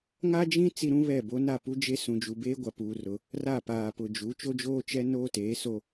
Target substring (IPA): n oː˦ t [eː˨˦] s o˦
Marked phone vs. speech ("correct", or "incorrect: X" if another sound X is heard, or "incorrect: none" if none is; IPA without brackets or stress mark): correct